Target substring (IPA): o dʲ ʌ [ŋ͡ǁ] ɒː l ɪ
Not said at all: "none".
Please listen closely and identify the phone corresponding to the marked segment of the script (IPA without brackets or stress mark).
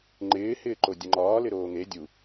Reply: ŋ͡ǃ